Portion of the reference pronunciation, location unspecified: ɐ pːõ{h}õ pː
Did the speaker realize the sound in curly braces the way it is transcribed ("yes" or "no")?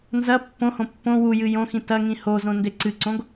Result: yes